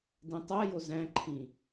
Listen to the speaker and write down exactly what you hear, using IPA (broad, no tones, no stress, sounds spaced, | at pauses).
d ĩ tˤ æ j o z æ̃ ǃʰ ĩ